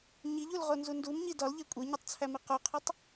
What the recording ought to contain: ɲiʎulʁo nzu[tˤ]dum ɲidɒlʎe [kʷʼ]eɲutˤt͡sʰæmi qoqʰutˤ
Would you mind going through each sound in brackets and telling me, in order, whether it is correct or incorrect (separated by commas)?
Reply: incorrect, correct